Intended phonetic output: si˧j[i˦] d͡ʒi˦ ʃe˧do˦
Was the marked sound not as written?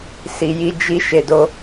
no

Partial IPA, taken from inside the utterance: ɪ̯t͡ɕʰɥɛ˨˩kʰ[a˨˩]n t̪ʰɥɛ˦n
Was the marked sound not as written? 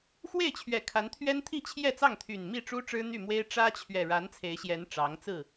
yes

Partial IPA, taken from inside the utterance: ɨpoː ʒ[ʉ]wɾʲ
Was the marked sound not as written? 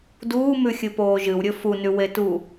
yes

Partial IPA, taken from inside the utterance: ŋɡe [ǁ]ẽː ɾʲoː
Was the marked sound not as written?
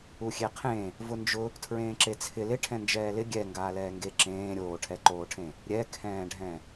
no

